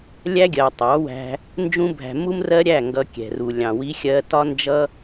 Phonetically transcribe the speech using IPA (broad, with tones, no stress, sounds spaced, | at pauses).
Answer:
lʲ æ˦ ɡʲ ɜ˨ tˤ ɑ˨˦ w æ̤˧ | n d͡ʒ ũ˧ bʱ æ̤˨ m u˦ m r ɜ˦ ɾʲ æ˦˨ ŋ ɡ ʌ˧ kʲ ɛ̤˨ r u˨ lʲ ɑ̃˨ w i˦ xʲ ɜ˦ t ɒ˦ n d͡ʒ ʌ˦